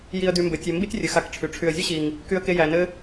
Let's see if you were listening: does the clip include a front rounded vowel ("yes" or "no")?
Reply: yes